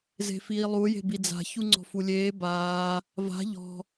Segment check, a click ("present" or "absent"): present